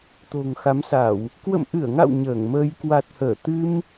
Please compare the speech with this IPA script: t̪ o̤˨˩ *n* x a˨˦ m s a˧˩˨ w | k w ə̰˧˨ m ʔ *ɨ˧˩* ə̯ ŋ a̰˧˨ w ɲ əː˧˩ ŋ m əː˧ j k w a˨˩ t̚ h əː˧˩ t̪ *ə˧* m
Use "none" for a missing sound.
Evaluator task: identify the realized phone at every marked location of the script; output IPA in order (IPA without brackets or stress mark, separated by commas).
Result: ŋ, ɨ˧˩, ɨ˧